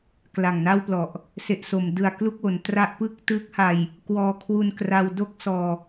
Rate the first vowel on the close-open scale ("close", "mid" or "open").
open